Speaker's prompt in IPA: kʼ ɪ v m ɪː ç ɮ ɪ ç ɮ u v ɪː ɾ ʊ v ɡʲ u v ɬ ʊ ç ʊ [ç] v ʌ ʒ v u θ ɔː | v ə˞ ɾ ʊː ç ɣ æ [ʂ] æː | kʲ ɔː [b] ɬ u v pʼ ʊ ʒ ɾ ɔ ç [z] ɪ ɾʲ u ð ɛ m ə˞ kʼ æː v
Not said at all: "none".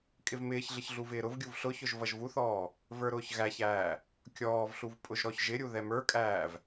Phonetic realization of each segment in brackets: ʒ, ç, v, ʒ

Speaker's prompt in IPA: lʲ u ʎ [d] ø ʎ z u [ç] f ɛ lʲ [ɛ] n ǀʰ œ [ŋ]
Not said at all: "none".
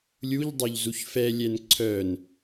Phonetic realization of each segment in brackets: dˤ, ç, ɛ, n

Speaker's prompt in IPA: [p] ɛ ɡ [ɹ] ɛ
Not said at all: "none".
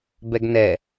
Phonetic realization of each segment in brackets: b, n

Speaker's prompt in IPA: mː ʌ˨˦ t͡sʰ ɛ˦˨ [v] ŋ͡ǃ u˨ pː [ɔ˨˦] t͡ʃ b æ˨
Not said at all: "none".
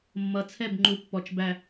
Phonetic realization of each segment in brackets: b, ɔ˨

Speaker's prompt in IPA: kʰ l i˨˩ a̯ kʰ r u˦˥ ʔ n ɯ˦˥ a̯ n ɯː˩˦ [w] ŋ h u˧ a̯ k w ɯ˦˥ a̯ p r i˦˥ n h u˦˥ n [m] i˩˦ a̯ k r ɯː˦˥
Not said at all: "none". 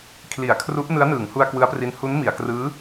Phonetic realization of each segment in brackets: none, m

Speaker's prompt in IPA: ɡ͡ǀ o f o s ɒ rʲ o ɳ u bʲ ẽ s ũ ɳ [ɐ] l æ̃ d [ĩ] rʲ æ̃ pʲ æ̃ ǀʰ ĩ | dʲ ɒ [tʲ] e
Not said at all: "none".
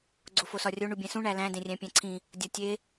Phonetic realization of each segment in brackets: æ, ẽ, tʲ

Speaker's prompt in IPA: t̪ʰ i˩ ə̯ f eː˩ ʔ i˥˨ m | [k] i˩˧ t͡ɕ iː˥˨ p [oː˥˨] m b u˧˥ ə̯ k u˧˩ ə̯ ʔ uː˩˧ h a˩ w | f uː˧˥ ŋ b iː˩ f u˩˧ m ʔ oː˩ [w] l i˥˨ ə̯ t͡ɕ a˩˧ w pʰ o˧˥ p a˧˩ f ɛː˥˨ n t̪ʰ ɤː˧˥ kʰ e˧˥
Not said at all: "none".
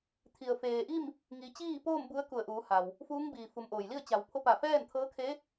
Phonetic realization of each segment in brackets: ŋ, oː˥˨, j

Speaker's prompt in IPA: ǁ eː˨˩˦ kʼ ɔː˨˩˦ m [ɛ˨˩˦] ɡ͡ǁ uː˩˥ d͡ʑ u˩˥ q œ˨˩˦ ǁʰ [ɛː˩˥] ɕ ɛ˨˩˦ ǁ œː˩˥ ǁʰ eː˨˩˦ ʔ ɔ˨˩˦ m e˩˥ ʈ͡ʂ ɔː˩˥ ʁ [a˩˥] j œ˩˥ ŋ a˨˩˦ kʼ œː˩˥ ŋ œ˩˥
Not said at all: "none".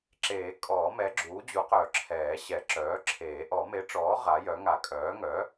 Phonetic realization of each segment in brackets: ɛ˩˥, ɛː˨˩˦, a˩˥

